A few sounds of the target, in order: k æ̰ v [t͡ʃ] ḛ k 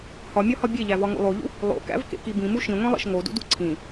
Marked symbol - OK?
no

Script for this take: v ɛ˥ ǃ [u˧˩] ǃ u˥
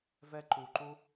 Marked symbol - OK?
yes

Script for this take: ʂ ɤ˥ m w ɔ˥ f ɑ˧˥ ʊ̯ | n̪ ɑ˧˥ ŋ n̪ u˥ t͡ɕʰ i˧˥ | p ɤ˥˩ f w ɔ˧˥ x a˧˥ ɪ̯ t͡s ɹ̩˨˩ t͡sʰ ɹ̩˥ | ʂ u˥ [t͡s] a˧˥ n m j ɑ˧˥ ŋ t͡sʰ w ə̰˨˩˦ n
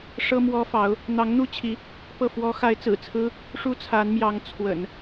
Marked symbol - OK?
no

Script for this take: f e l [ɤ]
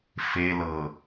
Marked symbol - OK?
yes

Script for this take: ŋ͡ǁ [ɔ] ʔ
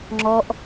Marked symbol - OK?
yes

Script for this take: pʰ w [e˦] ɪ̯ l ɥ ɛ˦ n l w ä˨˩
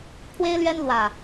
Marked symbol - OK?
yes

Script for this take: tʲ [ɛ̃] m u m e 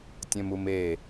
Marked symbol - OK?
yes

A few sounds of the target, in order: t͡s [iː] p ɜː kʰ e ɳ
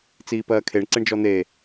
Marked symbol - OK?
yes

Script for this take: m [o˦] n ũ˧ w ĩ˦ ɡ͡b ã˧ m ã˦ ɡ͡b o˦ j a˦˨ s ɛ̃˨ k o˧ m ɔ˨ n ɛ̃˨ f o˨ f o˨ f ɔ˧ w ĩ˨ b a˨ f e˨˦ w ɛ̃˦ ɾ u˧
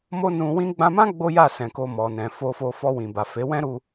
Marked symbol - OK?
yes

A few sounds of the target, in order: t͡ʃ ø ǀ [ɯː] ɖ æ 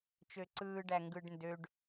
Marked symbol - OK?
yes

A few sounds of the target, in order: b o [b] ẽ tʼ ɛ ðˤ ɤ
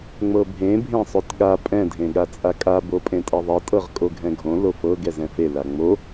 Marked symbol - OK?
no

